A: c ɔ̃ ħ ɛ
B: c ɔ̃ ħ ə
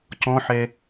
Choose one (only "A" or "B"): A